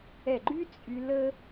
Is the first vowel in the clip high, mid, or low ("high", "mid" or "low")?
mid